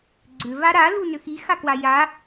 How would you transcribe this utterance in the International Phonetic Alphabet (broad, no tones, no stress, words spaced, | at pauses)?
ɡ͡ǀʏ vaɾa lunʏxi xakwaja